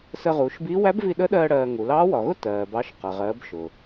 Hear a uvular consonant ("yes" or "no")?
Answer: yes